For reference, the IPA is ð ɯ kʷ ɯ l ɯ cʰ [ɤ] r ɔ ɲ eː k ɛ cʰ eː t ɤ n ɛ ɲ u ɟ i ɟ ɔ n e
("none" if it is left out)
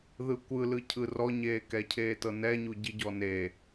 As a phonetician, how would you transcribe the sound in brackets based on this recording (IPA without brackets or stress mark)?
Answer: ɯ